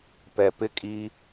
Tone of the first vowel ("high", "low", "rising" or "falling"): low